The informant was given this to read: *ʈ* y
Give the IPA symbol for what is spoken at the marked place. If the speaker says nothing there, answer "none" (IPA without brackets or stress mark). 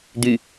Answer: d̪